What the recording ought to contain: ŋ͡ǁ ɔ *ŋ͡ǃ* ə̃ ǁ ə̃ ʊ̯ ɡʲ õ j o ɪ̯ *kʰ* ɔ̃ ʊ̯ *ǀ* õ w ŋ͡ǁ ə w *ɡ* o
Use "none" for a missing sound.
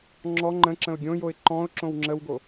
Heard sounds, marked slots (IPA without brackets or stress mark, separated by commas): ŋ͡ǃ, ǃ, ǁ, ɡ